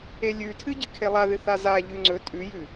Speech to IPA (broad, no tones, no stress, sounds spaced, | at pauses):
e lʲ ʉ tʰ ɨ ɟ ɨ kʰ e lˠ a ð ɨ θ a z a ʎ ʉ ŋ͡ǀ ɵ tʼ ʉ j ʉ